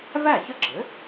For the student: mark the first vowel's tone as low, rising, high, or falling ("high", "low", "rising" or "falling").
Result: falling